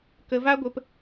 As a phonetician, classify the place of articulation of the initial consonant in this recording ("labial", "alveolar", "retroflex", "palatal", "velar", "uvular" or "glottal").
velar